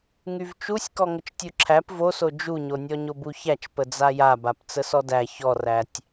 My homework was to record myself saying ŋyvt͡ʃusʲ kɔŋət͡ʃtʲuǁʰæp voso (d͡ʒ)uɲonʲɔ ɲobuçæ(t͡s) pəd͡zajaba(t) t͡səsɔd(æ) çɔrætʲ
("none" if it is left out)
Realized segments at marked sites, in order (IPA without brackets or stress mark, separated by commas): d͡ʒ, t͡ʃ, p, æ